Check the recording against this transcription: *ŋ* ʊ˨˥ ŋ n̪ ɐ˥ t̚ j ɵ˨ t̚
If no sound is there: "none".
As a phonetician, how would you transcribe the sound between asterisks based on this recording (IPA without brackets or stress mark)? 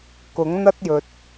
k